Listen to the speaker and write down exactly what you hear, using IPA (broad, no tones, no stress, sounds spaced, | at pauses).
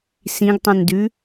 s ĩ ɡ tˤ ũ n d ʉ